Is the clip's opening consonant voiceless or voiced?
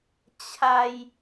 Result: voiceless